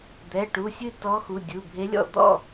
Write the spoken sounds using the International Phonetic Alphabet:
d̪ ɛ˩˧˩ ʈ u˩˧˩ sʲ ɨ˥˨ t ɔ˧˥ x u˩˧˩ dʲ u˩˧˩ bʱ e˧˥ lʲ ɔ̰˥˨ d̪ ɔ̰˥˨

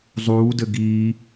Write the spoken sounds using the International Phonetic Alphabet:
zˤ uː d ɘ ɡ iː

